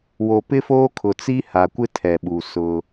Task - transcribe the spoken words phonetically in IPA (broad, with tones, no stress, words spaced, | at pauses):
wo˨pɪ˦foː˦ kʰʊ˨t͡si˦ha˨kʷɪ˦ tʰɛ˨ ɓuː˨ sʊ˦